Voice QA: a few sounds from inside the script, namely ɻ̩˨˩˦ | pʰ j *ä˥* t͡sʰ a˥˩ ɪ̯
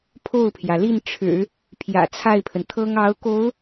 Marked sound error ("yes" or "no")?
yes